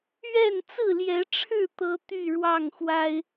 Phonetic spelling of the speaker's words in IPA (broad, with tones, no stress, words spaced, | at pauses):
ɥɛ˥˨nt͡sɹ̩˥˨ljɛ˨˦ʈ͡ʂʰɻ̩˥˨ t̪ɤ˦ t̪y˥˨ ɻwɑ˥˨ŋxwa˦ɪ̯